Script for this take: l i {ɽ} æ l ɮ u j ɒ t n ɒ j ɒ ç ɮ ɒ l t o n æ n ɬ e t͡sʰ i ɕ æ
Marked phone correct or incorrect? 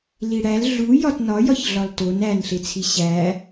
correct